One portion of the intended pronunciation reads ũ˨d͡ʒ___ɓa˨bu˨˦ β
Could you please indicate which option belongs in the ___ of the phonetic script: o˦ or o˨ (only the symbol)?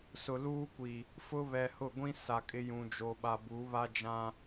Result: o˨